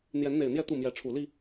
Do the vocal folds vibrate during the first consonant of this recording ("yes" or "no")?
yes